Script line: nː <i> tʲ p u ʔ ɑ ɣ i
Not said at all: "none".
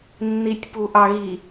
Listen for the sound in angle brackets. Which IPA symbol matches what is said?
i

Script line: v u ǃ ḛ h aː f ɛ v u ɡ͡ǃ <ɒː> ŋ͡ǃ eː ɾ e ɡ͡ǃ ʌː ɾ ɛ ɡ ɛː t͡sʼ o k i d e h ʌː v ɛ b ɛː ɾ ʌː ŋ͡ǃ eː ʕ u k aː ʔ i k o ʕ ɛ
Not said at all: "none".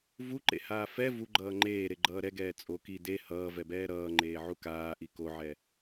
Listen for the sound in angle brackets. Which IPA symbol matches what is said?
ʌː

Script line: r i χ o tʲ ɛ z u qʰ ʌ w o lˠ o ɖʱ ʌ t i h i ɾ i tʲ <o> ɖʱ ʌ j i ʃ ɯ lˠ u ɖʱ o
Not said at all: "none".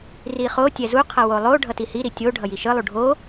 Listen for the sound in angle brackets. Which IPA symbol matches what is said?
o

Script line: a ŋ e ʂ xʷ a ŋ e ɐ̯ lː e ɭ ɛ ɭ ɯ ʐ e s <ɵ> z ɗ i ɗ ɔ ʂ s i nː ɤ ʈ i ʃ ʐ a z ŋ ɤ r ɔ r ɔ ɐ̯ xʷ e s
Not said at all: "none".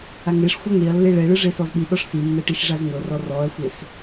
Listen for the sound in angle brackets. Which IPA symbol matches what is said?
ɔ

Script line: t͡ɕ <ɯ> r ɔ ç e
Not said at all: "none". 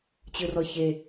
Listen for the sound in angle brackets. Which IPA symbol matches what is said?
ɯ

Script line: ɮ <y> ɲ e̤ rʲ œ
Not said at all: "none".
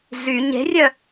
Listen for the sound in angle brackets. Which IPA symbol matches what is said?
y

